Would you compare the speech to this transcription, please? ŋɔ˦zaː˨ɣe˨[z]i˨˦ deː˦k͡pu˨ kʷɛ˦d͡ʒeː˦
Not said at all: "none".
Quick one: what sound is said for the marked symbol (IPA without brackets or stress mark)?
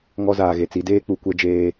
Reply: t͡s